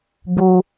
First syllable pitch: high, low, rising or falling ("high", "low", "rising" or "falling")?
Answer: low